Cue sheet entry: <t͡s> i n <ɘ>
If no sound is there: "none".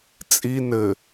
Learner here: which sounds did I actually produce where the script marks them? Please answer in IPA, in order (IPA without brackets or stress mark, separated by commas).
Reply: t͡sʼ, ɘ